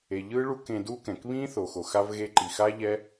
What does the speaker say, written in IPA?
e˨ʎɯ˦ɭu˦k ẽ˧du˦kɛ̃˨k βĩ˦ θo˨xo˨xa˦v ɣe˧ǃi˨xa˦ʎɛ˦

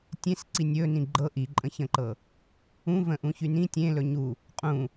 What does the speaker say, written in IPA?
tʲẽsǀi nʲɵ nĩɡ͡ǃɤ ʔiǃʼə̃çə̃ǃɤ | ũvə̃ʔũ çynĩ tʲẽlɵ ɲu | qʼũ

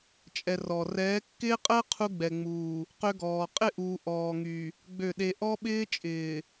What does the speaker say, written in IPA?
t͡ʃʼɛ˨ rɔ˨ rɛː˨˦kːɪː˦qʼəː˦ qʰu˦ɡ͡bɛ˨ŋ͡muː˨ | qø˦ɡɔː˨ qʼɪ˦˨ʔuː˨ ʔɔː˨ŋy˨ | ɡ͡bø˦˨ɗe˦ ʔɔ˦ɓɪː˦t͡ʃʼɪː˨

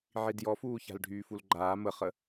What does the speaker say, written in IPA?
ʕidjɔfuːça̤l ɖʱyːfulɡ͡ǃaː məχə

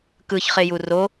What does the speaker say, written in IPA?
kɯçχeju ro

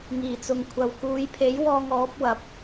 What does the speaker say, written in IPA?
ŋiː˨˩t͡sʊ˨ŋ kʷʰɐ˨w kuː˨˧jpʰe˨˥jwɔː˧ŋ ɔː˨˥p̚wɐ˨˥p̚

